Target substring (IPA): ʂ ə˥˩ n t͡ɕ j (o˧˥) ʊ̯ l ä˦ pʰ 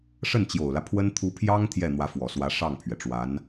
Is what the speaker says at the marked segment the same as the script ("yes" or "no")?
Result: no